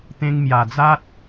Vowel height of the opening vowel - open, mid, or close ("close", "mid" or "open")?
mid